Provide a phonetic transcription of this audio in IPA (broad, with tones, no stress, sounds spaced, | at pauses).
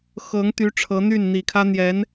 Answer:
x ɤ˧˥ ŋ t̪ y˧˥ ʈ͡ʂʰ ɤ˧˥ n̪ y˥˩ n n̪ i˨˩ kʰ ä˥ n̪ j ɛ˧˥ n